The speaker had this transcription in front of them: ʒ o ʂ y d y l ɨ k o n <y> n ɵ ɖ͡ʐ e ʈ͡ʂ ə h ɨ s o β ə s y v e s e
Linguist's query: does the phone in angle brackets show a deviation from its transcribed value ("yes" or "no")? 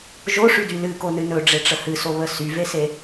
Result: yes